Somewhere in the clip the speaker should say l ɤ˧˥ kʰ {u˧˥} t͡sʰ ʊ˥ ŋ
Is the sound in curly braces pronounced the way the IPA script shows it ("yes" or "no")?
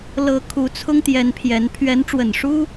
yes